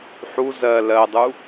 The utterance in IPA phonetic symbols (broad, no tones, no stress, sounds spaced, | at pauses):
ħ u z ɜ l ɜ dˤ u